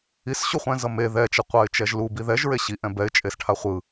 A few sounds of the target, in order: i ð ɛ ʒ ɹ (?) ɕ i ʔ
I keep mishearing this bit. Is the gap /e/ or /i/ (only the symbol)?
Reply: e